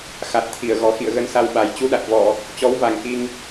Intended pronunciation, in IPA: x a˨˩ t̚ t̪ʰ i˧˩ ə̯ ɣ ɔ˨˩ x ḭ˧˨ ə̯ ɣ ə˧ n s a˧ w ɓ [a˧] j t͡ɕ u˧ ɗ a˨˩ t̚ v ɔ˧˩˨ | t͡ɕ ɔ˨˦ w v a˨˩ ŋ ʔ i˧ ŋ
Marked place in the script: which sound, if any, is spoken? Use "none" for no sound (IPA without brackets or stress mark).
a˨˩